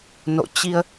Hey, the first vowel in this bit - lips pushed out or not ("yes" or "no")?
yes